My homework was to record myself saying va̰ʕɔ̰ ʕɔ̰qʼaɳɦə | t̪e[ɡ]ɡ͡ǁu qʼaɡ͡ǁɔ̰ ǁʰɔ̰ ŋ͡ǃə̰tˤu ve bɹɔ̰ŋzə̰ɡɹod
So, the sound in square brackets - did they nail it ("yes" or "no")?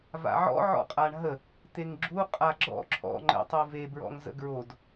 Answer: no